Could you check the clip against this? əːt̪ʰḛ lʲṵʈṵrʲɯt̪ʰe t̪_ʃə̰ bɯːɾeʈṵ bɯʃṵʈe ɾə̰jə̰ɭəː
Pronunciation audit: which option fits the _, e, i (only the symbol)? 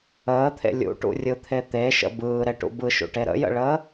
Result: e